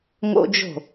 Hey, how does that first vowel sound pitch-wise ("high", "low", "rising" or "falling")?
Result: high